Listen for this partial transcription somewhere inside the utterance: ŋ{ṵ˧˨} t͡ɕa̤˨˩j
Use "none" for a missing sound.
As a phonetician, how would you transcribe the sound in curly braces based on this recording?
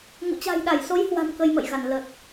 ṵ˧˨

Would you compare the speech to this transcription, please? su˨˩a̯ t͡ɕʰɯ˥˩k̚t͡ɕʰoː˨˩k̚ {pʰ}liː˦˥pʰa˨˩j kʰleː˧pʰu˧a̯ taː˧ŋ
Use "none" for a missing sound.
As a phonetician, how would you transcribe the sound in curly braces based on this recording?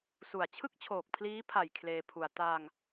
pʰ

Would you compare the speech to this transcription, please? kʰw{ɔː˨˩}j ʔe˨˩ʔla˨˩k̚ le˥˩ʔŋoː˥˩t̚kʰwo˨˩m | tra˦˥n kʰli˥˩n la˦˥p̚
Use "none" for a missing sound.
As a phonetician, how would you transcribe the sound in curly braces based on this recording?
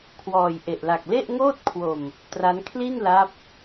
ɔː˨˩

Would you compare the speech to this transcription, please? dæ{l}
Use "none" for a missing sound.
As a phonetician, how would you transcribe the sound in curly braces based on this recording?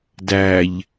ʎ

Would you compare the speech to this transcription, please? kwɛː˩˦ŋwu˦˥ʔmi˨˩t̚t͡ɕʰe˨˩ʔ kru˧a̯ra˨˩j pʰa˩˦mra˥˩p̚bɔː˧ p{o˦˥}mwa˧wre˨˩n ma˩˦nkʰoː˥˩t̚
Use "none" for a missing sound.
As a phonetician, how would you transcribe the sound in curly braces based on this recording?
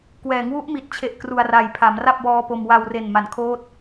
o˧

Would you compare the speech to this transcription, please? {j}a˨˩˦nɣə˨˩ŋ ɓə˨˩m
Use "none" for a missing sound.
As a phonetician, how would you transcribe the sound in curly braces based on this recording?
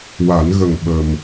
w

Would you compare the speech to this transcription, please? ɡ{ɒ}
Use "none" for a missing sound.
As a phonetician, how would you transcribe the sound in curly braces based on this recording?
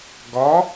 ɒ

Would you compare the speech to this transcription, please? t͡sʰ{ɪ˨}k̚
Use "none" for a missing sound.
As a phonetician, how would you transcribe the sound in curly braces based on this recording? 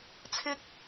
ɪ˥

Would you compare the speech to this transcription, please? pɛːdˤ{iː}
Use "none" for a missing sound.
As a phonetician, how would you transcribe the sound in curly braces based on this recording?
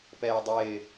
ɪː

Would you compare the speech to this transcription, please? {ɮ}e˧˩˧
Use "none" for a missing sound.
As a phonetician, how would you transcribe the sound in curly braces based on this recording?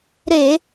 ɾ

